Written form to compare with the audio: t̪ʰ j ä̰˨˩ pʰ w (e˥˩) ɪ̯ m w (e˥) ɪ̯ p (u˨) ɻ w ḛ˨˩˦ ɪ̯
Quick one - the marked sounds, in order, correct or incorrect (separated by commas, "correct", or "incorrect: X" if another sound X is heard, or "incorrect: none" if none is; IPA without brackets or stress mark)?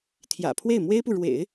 correct, correct, correct